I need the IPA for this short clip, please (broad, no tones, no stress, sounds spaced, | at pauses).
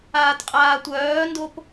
aː t qʼ aː tʷ œː n d o p